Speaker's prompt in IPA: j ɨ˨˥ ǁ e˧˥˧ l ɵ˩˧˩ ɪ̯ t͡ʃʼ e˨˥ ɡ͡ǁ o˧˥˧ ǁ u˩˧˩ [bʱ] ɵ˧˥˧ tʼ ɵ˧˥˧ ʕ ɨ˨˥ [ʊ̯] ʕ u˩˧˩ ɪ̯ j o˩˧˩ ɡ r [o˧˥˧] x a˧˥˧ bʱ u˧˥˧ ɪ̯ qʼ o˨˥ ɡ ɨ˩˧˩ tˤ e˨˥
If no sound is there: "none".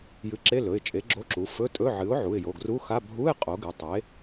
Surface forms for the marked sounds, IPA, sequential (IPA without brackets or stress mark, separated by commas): f, ʊ̯, u˧˥˧